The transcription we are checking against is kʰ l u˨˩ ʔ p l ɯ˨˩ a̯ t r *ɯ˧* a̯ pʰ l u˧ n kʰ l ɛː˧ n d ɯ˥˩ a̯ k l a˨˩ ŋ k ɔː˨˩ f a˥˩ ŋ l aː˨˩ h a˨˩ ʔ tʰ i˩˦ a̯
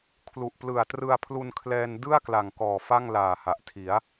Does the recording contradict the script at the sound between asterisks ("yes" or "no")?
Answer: no